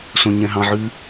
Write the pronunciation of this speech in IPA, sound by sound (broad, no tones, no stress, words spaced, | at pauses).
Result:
sõɲɛ̃ɦɑ̃ʕʉ